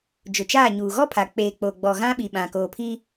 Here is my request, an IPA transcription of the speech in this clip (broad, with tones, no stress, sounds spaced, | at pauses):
d͡ʒ ʊ˨ t͡ʃ aː˦˨ ɲ uː˨ ɣ ɔ˦ pʰ a˨ k͡p eː˨ k͡p oː˨ ɡ͡b ɔ˨ ɣ ã˦ ɓ i˨ ɓ ã˨ k oː˨ pʰ i˦